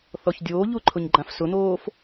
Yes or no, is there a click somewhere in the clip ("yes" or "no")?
yes